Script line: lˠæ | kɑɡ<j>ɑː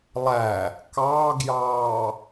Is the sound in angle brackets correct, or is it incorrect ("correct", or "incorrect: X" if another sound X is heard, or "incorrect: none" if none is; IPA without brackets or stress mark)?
correct